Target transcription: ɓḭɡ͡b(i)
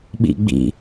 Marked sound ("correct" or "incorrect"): incorrect